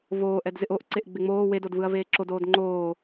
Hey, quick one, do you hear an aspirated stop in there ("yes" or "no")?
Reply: no